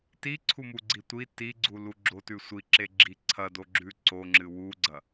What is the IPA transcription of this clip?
tiǀʰumuɡ͡ǀi tʷi tiɡ͡ǀulu ɡ͡ǁotʉ sʷiǁeɡ͡ǁi ǀʰɐdoɡ͡ǁʉ ǀoŋ͡ǁɨ wuɡ͡ǀɐ

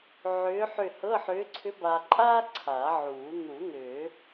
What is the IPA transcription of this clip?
ʕʏː˧˥ħʏ˦˨hɤ˧˥˧ħʏː˧˥ ǀʰʏ˧˥ba˨ǃʼaː˥ ǀʰa˨˩˦ʕuː˨˩˦ n̪u˨˩˦ n̪ʏː˨˩˦

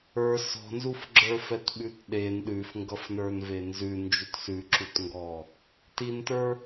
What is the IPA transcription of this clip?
ə˞ sɔ̤nzufɡ͡ǁə˞fɛt ɓʉtɗen ɗʉfŋɡʌfnə˞nve nzʉ nd͡ʒutsʉǁutŋɡɔ | tintə˞

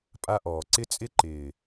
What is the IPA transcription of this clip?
pʼa˦ʔɔː˨ ǀɪ˦t͡sʼɪ˦ǃɪː˨

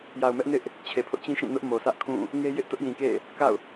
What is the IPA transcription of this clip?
ja˨ʊ̯mɛ˦ʔ nɪ˦ʔ | t͡ɕʰe˨pʰʊ˦ʔt͡ɕĩ˦ʃĩ˦˨ nʊ˦ʔmo˨sʰä˦ʔkʰũ˦˨ | ŋe˦jɪ˦ʔ tʊ˦ʔjĩ˨kḛ˦˨ | ka̰˦˨ʊ̯

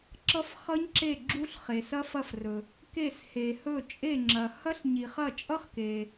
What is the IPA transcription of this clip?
ǁʌ˦˨fχʌ˦˥ɲǁe˦˨ ɡ͡ǁu˦˥ɬ χe˨sɐ˦˥fɐ˦˨frɵ˨ | ke˦˨she˨hɵ˦˨ t͡ʃʼe˦˨ŋ͡ǁɐ˨ hɐ˦˥ɬ ɲi˨χɐ˦˨ t͡ʃʼʌ˦˥χke˨

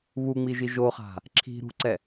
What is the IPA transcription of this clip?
βuŋ͡miʒi ʒoχa̤ | ǁʰi̤ ɾṳǀɛ

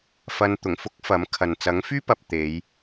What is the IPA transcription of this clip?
fɐ˧nt̪ʊ˨˩ŋ fʊ˥k̚fɐ˨˥mkʰɐ˨n t͡sɐ˨˥ŋfyː˥pɐ˨p̚ t̪e˨˧j

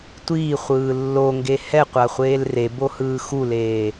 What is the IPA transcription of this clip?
tʷiːχʷɯː lːoŋɡe hɛqʷaχʷeːl rebohɯː xuleː

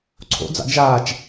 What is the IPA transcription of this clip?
ǀʰo̰d͡zɑ̰ d͡ʒaːt͡ʃ

